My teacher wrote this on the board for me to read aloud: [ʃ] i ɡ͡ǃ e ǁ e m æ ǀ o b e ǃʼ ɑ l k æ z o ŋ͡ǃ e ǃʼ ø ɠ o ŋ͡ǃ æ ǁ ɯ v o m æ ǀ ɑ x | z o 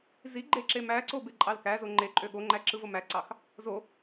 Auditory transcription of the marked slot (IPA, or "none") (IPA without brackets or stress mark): z